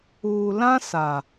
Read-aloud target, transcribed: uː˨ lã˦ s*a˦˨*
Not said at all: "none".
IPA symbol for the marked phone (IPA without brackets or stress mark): a˨